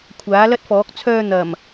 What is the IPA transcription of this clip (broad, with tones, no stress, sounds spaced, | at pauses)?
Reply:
kʷʰ aː˨˥ l ɐ˥ t̚ f ɔː˨˥ k̚ t͡sʰ œː˧ n̪ ɐ˨˩ m